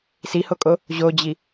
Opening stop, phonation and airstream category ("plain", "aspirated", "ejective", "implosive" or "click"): ejective